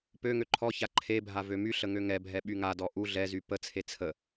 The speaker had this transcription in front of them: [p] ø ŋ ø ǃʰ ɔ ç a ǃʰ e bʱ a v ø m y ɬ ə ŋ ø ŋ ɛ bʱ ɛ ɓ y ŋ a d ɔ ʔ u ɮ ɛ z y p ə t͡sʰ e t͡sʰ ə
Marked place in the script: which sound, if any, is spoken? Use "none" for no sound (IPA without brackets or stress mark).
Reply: p